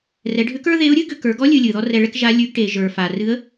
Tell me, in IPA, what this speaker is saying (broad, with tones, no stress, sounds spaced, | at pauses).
r ɛ˩˧ ɖʱ ʏ˧˥ k ə˞˥ ð e˧˥ ʊ̯ ɾʲ ɨ˥ ɡ ʏ˧ k ə˞˩˧ ɡ ɔ˧˥ lʲ ɨ˧ lʲ ɨ˩ ð ɔ˥ r ɛ˧ ɭ ɛ˥ k ʒ a˧˥ lʲ ʉ˧˥ ɡ ʈ e˩˧ ʒ ə˞˩ f a˩ r ɨ˧˥ ə̯